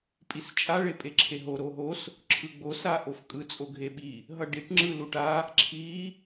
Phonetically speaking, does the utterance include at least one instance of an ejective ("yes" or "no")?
yes